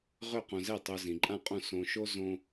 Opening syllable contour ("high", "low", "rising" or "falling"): falling